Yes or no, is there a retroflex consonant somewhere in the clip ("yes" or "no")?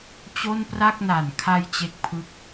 no